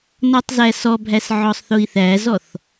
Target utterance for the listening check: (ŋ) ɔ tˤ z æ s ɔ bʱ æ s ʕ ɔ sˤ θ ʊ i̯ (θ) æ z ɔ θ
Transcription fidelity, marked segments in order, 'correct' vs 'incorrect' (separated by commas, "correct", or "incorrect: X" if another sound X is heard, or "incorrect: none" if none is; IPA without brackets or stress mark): incorrect: n, correct